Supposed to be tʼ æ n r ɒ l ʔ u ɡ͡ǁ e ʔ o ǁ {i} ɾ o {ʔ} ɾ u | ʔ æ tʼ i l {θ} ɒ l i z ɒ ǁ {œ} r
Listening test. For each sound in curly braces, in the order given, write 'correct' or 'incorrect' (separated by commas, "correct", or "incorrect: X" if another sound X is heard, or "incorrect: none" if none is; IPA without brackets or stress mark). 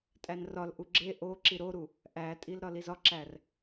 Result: correct, incorrect: none, incorrect: ɾ, incorrect: æ